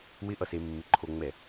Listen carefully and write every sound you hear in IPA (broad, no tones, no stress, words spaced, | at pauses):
wɪʔʌsemːɪ ǃʰoŋ͡mɛ